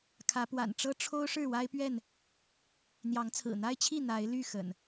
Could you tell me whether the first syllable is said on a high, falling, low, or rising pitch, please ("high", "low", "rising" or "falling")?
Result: rising